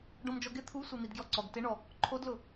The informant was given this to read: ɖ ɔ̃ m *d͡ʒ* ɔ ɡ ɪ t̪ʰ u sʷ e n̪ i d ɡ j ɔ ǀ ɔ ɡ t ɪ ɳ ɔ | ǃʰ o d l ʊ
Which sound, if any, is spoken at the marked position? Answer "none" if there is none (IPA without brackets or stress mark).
d͡ʒ